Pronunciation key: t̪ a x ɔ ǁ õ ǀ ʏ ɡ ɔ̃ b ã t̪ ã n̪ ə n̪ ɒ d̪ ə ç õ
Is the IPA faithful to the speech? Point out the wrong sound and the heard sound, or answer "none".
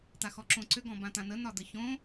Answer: none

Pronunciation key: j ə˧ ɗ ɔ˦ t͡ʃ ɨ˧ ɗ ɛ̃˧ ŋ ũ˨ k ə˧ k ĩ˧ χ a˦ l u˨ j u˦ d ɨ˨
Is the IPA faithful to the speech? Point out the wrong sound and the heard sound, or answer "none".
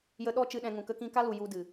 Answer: χ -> k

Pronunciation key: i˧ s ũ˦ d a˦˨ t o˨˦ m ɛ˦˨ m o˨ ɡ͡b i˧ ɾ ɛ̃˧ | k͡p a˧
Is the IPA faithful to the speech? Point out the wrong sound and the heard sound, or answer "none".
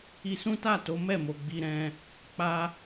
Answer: d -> t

